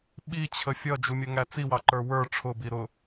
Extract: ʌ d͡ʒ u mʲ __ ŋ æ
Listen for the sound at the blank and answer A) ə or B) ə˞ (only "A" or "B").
A